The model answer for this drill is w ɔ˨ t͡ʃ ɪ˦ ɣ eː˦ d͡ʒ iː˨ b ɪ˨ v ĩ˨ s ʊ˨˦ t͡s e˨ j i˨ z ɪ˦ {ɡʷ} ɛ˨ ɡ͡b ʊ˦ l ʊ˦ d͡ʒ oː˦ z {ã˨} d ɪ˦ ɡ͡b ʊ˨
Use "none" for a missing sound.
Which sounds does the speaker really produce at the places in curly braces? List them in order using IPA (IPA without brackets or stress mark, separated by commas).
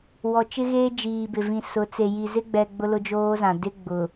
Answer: ɡ͡b, ã˨